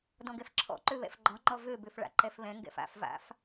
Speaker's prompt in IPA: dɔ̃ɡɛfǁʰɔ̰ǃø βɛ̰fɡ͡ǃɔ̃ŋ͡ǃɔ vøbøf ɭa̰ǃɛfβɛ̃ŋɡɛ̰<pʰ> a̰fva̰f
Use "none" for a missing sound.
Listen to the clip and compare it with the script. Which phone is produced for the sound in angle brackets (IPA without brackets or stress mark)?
f